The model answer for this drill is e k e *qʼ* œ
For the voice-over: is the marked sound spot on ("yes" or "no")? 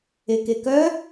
no